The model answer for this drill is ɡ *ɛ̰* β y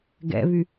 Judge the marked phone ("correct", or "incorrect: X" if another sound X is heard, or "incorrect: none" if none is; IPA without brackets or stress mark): correct